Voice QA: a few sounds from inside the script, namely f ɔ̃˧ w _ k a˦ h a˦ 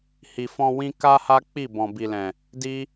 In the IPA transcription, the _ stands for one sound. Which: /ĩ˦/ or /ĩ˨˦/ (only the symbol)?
ĩ˦